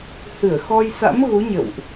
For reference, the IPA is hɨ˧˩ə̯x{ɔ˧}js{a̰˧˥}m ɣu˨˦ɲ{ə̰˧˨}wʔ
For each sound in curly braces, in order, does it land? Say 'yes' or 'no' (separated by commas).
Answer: yes, yes, yes